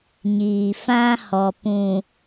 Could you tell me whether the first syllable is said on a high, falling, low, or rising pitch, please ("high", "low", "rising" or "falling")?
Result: low